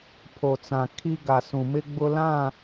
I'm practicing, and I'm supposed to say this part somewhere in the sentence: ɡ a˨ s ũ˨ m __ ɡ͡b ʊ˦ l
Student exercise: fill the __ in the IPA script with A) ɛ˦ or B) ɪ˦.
B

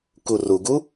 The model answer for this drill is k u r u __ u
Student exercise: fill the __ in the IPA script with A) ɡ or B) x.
A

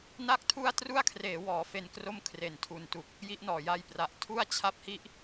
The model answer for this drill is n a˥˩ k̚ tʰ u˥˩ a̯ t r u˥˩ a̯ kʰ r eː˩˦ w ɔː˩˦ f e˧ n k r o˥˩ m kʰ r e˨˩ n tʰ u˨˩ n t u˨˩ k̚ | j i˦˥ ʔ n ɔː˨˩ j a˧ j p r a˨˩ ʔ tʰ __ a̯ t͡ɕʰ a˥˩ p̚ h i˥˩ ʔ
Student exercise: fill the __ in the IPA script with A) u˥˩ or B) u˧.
A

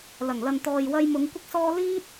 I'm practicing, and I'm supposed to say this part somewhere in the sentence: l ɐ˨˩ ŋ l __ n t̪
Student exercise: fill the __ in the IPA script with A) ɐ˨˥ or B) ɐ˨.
B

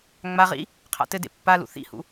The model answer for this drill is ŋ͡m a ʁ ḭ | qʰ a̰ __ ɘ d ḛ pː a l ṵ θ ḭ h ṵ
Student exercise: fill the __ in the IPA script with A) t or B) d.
A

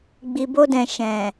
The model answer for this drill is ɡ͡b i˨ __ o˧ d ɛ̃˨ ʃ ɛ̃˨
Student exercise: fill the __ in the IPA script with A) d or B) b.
B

